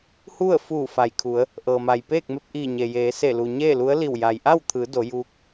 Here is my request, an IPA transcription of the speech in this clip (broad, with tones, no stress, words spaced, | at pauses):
hu˥˨ə̯fuː˧˩ fa˩jkʰu˩˧ə̯ | ʔɤː˩ma˩jpeː˥˨k̚ me˧p̚ʔiː˧˩ɲe˩jeː˩˧ se˧˩lu˩ ɲeː˥˨lu˧˥ə̯li˧˩w ja˩j ʔa˥˨wt̪ʰɯː˩˧ do˩˧juː˧˥k̚